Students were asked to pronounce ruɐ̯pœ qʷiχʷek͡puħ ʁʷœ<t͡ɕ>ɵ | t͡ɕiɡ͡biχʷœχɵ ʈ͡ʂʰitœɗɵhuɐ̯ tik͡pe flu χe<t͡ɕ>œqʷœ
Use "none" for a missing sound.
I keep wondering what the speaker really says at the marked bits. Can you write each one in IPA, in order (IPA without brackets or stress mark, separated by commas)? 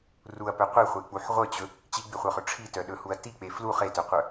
t͡ɕ, t